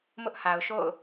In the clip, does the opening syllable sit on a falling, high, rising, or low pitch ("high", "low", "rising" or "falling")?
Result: high